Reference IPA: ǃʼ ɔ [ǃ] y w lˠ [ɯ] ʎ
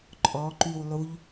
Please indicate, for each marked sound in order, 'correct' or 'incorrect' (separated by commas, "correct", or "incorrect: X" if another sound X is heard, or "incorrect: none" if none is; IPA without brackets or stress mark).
correct, incorrect: u